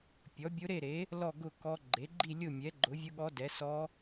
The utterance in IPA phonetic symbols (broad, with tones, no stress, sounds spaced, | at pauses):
pʲ ɔ˩˥ bʲ ʊ˧˥ ɾ e˥˨ ɾ e˩˥ | l ɔ˥˨ ɡ ʊ˥˨ k ɔ˧˥ ɡ͡ǃ e˩˥ ɡ͡ǃ i˥˨ lʲ ʊ˥˨ mʲ ɛ˩˥ ɡ͡ǃ ʊ˩˥ vʲ ʊ˧˥ ɠ ɔ˧˥ d ɛ˩˥ s ɔ˧˥